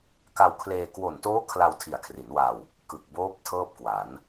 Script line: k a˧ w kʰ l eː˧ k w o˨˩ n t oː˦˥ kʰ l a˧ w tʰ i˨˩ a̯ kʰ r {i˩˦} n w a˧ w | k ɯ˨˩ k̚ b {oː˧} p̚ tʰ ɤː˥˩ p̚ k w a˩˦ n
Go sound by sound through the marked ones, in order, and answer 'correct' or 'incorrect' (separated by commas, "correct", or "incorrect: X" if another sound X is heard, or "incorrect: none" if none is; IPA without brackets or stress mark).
correct, incorrect: oː˦˥